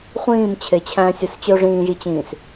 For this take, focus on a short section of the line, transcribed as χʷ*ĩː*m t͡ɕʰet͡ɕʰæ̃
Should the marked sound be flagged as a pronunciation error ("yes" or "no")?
no